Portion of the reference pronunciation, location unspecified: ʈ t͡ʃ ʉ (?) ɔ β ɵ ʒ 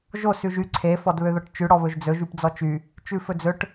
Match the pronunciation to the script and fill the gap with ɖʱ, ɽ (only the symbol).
ɽ